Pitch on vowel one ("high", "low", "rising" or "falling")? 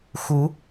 rising